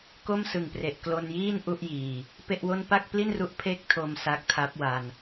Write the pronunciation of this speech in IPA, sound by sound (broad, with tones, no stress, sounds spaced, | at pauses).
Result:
k o˥˩ m s ɯ˨˩ ŋ p r e˨˩ ʔ k l o˧ n j iː˥˩ n ʔ u˥˩ ʔ j iː˨˩ | p e˥˩ ʔ w o˥˩ n p a˥˩ k̚ p l i˥˩ n r u˦˥ ʔ pʰ e˥˩ k̚ tʰ o˧ m s a˦˥ k̚ tʰ a˦˥ p̚ w a˧ n